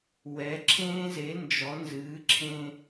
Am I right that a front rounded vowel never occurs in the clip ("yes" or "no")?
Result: yes